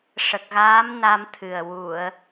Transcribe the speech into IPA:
ʂə˨˩k̚ɣaː˧˥m na˧mt̪ʰɨ˨˩ə̯ wu˨˩˨ə̯

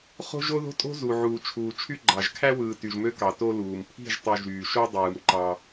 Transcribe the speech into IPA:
χo̤˦ʒo˦ðo̤˦tʼo̤˦ zu˨ʕuː˨ t͡ʃʰuː˨t͡ʃʰy˦ɡ͡ǃɑ˨ʒ kʰæ˦wɯː˨ ty˨ʒmø˦kɑ˨ to˦luː˨m pʰi̤˦˨ʒtˤu˨ ʒyː˨ʃo˦ dˤɯː˨mǃɑ˦

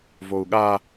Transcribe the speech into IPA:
vou̯ɠa

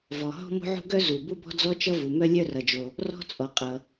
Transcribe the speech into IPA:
vɔ˩ ɦɔ̤˥ mo̤˥ʕṳ˥ ɡœ˥ zu˩ bu˥bɔ̤˥d͡zɔ˥ t͡ʃʌ˥vu˩ mœ˥lʲœ˥rʌ˩d͡ʒo˩ | rɔ̤˥t͡sʼɔ˩ qʼʌ˩

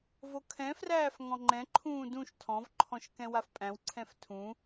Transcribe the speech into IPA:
vokʰɛ̃fræːf ŋɔ̃ŋ͡ǃɛ̃ǃʰũː dũʃ tʰɔ̃vǃʰɔ̃ʃ kɛ̃wafpʼæ̃wǀʰɛ̃f tʰũ

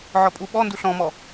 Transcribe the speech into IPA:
ʕɔpʼuɓɔ nduɬɔ̃mɔ

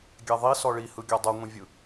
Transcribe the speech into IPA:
ɡʲɛðˤi sɔɭihɯɡʲɔ dˤɯŋʷĩvʲɯ

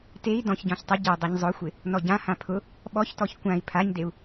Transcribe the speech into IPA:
tei̯ dɔ̃çɟɔ̃ç tˤɪ ɟɪu̯ dˤiɲzˤʊxʷɪ | nɔɟã hãpʰʊ | ɓɔçtɔç kʷãi̯ pʰaɲdeu̯

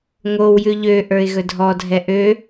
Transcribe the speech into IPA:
ŋowjʉ ʎø ʔə˞ɪ̯ɣɵdʱɔdʱɛ ʔø

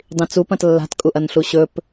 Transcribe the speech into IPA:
dˤĩt͡su pɐ̃tlːa̤t kʼuʔɐnɬuɕɵp

